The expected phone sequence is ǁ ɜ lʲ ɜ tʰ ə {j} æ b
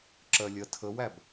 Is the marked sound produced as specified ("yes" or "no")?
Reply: no